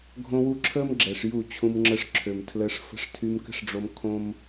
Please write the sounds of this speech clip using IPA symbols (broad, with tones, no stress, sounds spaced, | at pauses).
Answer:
ɡʱ õ˧ w u˧ ǁʰ əː˦ m ɡ͡ǁ ɛ˨ ʂ j u˦˨ t͡ɕʰ ũ˧ m ŋ͡ǁ ə˧ ʂ ǁʰ ø˨ m tʰ l əː˧ ʂ f ə̤˧ ʂ tʰ y˧ m k ə̤˦ ʂ ɖ͡ʐ o˧ m kʰ õ˦ m